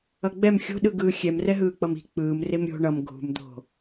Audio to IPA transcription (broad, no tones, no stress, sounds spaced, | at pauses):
ʌ ɡ͡b ɛ m xʲ o̤ ɗ ɯ ɡ ɯː xʲ ɛ m r ɛ ɦ ɯː k͡p ʌ m i̤ k͡p ɯː m r e m ɾʲ o̤ ɳ ʌ m ɡʱ ṳ m d̪ o̤